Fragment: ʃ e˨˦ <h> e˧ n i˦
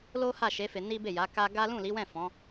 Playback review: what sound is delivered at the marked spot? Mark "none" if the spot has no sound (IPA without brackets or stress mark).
f